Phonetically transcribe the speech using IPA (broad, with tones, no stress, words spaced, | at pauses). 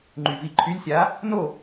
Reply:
ŋ͡ǃy˨˩vi˨˩ǃʰy˨˥lʲsʲa˨˥ | no˦˨